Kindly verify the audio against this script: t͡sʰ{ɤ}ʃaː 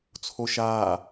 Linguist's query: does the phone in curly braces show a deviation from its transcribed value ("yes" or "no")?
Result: yes